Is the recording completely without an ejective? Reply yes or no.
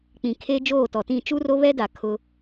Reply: yes